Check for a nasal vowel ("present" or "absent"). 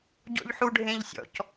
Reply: present